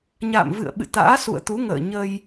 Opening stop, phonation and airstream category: implosive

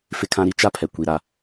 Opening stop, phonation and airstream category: aspirated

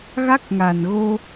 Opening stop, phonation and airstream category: plain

